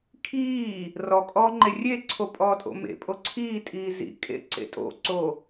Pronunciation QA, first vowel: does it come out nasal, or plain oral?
oral